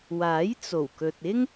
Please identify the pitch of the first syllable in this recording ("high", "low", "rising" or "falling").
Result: rising